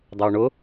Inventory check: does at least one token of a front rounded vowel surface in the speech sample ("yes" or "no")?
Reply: no